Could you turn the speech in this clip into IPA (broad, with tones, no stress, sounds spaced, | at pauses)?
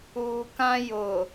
uː˨ k ã˦ j ʊ˨